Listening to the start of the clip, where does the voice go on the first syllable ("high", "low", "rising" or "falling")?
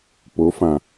rising